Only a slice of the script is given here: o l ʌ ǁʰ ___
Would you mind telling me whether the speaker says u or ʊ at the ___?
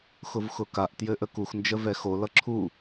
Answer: u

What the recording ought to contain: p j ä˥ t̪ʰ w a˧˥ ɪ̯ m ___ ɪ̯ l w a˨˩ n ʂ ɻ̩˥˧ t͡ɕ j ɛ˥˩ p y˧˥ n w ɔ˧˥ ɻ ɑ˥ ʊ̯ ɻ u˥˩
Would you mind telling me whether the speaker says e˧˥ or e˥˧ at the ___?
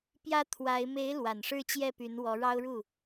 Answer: e˧˥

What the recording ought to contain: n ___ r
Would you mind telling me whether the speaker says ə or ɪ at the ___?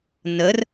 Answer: ə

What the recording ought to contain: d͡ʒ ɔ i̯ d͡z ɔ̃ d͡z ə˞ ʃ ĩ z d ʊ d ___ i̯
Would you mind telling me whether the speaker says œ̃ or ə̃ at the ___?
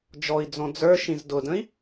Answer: ə̃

